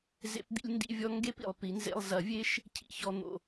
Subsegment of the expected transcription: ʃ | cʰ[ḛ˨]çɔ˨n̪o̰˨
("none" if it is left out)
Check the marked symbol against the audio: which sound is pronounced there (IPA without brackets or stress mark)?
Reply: ḭ˨